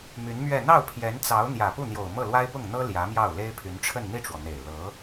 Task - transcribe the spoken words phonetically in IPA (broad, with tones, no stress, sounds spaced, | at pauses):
m y˧˥ n m ɥ ɛ˥˧ n̪ ɑ˥˩ ʊ̯ pʰ j ɛ˧˥ n t͡s ɑ˧˥ ʊ̯ n̪ j ä˨˩ p u˥˩ n̪ j o˨˩ ʊ̯ m ɤ˥˩ l w a˥ ɪ̯ p ʊ˥˩ ŋ n̪ ɤ˥ l j ä˧˥ m j ɑ˥˩ ʊ̯ l e˥ ɪ̯ pʰ y˧˥ n ʈ͡ʂʰ ə˥˧ n n̪ i˥˩ ʈ͡ʂ w ɔ˩ n̪ e˨˩ ɪ̯ l ɤ˧˥